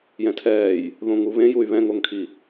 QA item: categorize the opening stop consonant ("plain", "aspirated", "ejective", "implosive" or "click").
aspirated